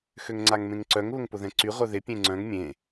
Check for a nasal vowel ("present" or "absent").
present